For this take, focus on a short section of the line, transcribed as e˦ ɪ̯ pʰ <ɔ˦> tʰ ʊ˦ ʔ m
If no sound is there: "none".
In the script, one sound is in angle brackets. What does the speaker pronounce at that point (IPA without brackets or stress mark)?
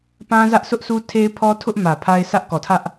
ɔ˦